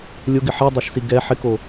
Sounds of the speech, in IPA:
lʲ ʊ ɡ ɪ ħ i dˤ e ʃ s i ɡ ɛ ħ ɪ k o

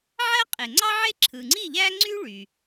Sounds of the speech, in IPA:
ʕ æ˥ qʼ e˩ ŋ͡ǀ ɑ˥ ʕ e˥ ǁʰ ɯ˩ ŋ͡ǀ i˥˨ ʎ æ˥ ŋ͡ǀ y˥ ɭ y˩

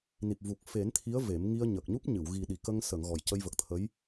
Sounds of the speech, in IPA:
n i˨˩ p̚ v u˨˩ k̚ f e˨˩˦ n t̪ʰ i˧˥ ə̯ v e˨˩˦ m ŋ i˧ ə̯ ɲ ə˨˩ k̚ ɲ u˦˥ p̚ ɲ ɨ˨˩˨ w ɣ i˨˩ ɗ i˨˩˨ k ə˧ ŋ s ə˨˩˨ ŋ ɣ ɔ˨˩ j c ə˧ j v ə˨˩ k̚ t̪ʰ ə˧˥ j

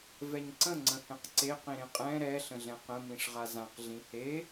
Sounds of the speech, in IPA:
v ɛ ɲ ǀ ə̃ ŋ͡ǀ ə̃ h ɛ̃ q ǀ e q ĩ ɾ ẽ qʼ ɛ̃ ɾ ɛ ɬ ə̃ ɮ ɛ̃ q ə̃ m ĩ ʂ ʁ a z ã q ɮ ĩ h e

